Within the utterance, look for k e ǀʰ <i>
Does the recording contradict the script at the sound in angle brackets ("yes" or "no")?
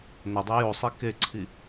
no